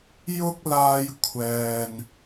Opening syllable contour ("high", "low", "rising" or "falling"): high